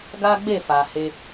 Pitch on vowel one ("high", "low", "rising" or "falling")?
high